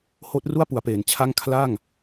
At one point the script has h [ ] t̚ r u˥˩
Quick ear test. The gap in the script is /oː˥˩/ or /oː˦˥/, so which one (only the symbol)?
oː˦˥